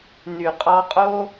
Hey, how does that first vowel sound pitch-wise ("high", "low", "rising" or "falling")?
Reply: low